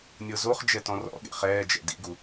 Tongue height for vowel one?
mid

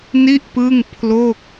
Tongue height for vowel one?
high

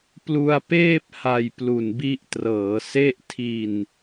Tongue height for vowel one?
high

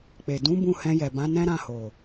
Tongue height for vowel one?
mid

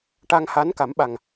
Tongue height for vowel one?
low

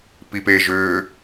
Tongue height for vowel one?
high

